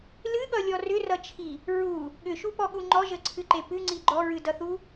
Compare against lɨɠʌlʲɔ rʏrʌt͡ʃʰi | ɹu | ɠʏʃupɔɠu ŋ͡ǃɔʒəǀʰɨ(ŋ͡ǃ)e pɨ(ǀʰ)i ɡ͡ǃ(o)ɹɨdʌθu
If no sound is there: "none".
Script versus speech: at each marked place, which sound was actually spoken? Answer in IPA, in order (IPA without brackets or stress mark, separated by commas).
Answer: ǃ, ŋ͡ǀ, ɔ